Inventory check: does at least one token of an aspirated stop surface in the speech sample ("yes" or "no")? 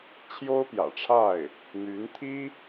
yes